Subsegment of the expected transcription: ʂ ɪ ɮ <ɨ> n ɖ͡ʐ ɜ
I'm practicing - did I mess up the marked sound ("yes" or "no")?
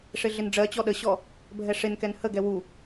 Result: yes